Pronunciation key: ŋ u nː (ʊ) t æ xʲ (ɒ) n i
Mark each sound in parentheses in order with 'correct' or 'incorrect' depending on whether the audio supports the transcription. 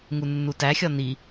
incorrect, correct

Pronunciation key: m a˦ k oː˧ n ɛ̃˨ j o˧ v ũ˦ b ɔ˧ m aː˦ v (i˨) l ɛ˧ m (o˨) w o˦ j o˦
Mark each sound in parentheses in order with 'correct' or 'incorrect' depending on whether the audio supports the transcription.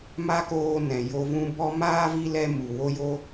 incorrect, incorrect

